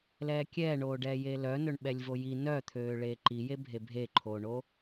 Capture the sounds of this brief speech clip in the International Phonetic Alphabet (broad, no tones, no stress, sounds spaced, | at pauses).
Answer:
l ɛː kʲ ɛː ɳ oː ɖ ɛː j e l œ n ɵ ɳ ɓ ɛ lʲ v o j i n œ t̪ʰ øː ɭ eː ǃ i j e bʱ e bʱ e ǃʰ oː ɳ o